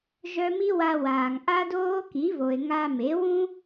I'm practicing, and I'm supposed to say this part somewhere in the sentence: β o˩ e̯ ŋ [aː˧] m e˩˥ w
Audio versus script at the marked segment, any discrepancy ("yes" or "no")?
yes